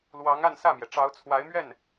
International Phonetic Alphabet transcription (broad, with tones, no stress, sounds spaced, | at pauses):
l w ɑ˧˥ ŋ a˥˧ n s ä˥˩ m j ɛ˩ ʈ͡ʂ ɑ˧˥ ʊ̯ t͡sʰ w a˧˥ ɪ̯ m ɥ ɛ˥˩ n